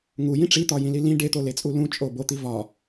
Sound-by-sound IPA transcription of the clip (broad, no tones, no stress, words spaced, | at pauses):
ŋujĩ ʈ͡ʂit̪ɒjĩli lĩ ɖet̪olet͡sʼu lũt͡ʃʼo bot̪i vɒ